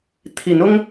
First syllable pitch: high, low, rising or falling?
rising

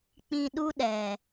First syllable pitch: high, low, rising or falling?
low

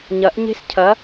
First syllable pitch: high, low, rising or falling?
rising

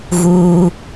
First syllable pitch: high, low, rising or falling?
high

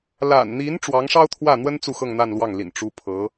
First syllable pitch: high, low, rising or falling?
low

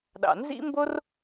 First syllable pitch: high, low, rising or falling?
low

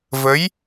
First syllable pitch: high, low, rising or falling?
rising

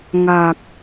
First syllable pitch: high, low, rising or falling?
low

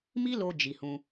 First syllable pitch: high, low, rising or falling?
high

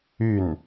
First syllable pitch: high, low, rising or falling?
falling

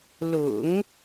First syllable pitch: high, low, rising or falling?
low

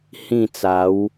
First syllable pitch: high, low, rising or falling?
falling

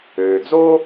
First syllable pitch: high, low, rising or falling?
low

